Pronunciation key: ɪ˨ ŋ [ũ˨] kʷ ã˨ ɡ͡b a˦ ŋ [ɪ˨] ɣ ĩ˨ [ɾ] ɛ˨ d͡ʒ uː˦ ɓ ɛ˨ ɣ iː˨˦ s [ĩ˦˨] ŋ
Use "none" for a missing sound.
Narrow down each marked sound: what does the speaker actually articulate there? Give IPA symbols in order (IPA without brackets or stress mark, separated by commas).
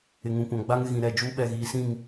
ũ˨, ɪ˨, ɾ, ĩ˦˨